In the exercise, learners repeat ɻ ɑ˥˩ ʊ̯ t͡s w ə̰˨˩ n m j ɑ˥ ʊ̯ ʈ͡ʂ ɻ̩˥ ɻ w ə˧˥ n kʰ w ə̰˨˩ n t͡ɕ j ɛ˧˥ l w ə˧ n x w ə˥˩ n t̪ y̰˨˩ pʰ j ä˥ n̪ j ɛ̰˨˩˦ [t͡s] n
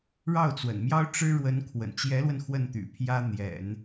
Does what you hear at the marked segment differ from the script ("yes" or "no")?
yes